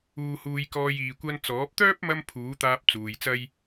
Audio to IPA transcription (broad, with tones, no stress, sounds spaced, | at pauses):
uː˧ h uː˧ j k ɔː˧ j iː˨ kʷ ɐ˧ n t͡s ɔː˨˥ p̚ t̪ œː˥ p̚ m ɐ˧ m pʰ uː˨˥ t̪ aː˧ p̚ t͡s uː˨ j t͡s ɐ˥ j